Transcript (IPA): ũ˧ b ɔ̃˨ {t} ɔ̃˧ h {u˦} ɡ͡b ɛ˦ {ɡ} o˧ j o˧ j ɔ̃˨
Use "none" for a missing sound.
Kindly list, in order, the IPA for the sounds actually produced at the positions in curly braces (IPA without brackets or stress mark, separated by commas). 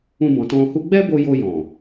t, u˦, b